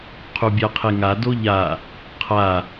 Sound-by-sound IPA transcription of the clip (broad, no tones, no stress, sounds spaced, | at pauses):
qʰ u bʲ a qʰ e ŋ a d o ʎ a | qʰ a